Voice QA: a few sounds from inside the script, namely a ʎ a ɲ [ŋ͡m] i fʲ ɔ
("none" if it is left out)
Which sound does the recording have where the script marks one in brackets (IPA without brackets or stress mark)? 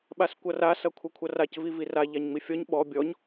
ŋ͡m